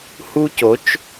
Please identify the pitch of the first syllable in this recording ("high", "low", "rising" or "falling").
high